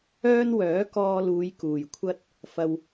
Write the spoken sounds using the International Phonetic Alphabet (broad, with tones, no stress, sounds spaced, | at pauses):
œː˥ n w œː˨˥ k ɔː˧ l uː˨˧ j k uː˨ j kʷʰ ɐ˥ t̚ | f ɐ˧ w